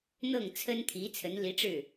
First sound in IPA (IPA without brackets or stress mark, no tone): n̪